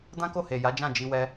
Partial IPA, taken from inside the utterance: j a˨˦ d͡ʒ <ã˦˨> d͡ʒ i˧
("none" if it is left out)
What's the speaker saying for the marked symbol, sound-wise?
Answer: ã˦˨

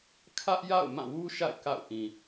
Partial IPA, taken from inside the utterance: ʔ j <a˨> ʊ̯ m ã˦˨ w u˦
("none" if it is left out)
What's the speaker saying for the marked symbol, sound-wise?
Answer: a̰˦˨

